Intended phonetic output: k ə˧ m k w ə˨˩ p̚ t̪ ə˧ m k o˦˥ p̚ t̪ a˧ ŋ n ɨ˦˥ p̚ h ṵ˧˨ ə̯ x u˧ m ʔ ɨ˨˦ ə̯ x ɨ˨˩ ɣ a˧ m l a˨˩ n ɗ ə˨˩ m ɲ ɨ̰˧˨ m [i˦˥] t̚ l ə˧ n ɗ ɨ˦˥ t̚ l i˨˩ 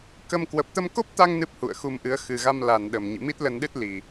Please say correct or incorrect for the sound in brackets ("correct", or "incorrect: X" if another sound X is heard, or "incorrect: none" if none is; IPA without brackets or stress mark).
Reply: correct